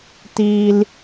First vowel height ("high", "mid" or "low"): high